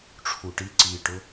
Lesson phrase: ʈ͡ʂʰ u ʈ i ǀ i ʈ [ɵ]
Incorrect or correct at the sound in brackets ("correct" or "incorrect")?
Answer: correct